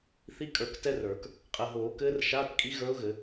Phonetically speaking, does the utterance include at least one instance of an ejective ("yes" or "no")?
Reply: yes